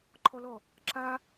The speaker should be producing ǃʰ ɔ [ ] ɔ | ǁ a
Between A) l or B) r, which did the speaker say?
A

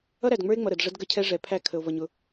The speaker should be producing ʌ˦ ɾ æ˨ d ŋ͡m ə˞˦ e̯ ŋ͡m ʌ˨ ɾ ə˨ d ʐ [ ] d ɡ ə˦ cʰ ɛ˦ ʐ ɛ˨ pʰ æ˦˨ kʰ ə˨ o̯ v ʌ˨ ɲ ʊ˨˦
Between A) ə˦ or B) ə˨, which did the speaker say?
A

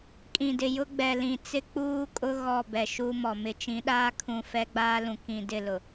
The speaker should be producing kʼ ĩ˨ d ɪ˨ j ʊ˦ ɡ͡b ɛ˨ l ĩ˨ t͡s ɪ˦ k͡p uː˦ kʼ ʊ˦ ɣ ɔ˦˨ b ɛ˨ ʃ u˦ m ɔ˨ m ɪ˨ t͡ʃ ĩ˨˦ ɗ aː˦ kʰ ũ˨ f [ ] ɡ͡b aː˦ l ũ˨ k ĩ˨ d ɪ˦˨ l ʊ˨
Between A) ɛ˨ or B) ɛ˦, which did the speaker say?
B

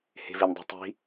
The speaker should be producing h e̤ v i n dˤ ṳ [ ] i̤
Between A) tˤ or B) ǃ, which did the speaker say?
A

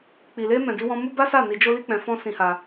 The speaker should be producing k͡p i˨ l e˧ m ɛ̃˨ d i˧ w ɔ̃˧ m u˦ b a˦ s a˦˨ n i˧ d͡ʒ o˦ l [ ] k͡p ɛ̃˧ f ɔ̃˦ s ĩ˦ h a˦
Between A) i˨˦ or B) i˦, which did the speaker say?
B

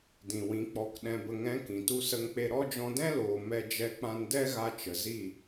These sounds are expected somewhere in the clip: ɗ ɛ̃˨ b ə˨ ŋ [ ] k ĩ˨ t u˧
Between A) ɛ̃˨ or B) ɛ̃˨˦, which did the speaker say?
B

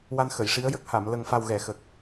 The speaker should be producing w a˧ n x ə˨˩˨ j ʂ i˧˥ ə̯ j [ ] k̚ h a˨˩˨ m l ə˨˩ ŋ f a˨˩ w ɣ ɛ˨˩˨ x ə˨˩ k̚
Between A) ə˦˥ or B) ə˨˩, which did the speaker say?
A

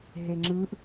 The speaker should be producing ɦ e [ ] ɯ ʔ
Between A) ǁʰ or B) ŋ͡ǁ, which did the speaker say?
B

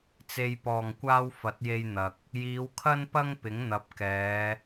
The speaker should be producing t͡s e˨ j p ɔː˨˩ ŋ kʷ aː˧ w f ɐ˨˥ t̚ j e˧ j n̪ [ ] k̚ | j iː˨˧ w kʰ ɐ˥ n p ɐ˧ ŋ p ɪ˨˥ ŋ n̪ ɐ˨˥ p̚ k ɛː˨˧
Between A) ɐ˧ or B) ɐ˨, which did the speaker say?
B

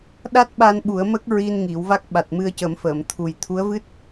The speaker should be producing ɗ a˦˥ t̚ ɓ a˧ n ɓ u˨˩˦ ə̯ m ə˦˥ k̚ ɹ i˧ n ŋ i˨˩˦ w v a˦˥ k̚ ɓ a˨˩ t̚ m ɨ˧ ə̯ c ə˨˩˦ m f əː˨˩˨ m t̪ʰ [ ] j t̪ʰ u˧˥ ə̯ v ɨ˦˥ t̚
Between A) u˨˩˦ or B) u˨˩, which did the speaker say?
B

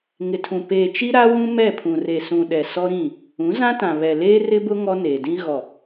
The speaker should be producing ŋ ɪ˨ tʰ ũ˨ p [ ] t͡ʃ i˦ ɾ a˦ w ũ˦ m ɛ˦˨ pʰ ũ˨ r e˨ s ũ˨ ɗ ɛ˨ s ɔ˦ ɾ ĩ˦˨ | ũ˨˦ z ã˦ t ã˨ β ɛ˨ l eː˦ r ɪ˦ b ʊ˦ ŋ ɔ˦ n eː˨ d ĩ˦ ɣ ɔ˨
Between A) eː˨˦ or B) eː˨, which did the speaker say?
B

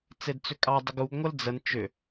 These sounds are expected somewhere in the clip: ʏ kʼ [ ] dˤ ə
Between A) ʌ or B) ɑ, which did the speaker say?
B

